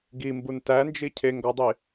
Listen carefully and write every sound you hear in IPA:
ɡ i m b u n t æ n d͡ʒ i cʰ e ŋ ɡ ɒ dˤ i

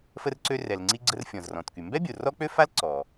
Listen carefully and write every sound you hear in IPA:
f ə˧ r ǀ ø˧ r ɛ˩ l ŋ͡ǀ i˧ ɡ͡ǀ ə˧ r fʲ ɔ̃˩ z r ɔ̃˩ t k y˩ m b ɛ˥ bʲ o˩ r ɔ˥ k͡p ø˥ f a˥ l ǀ ɔ˩

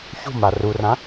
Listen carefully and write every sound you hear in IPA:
ç ṳ m a r u r ã

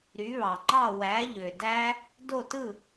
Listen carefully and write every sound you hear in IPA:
ɾ y˩˥ β ɑ˩ ŋ͡ǃ ɑ˥˩ w æ˩˥ ʎ ø˩ d æ˦˥ | d o˥˩ t ɯ˥˩

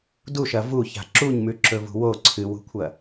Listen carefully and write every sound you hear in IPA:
d u ʃ ɐ v u ç a̤ ǁ u ɲ m ʉ ǁ ɵ v ṳ w o ǀʰ ɨ w ṳ kʷʰ ɐ

